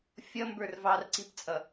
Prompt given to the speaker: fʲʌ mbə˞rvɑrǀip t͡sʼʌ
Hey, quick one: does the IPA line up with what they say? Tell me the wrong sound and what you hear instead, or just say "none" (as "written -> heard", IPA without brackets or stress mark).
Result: none